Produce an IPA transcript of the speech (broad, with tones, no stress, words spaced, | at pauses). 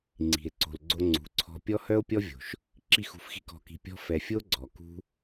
ŋ͡ǀi̤˨e̯ǀo̤˨lɡ͡ǀo˧ ŋ͡ǀṳ˨˦ǀʰɔ̤˧ pʲɔ˦hœ˦o̯pʲɔ˦vʲo̤˨ʃ | ǁi˦˨xṳ˧fxi̤˦ kɔ̤˧ki̤˧ pʲɔ̤˦ fɛ˨fʲo˦ ɡ͡ǀɔ˨ kṳ˦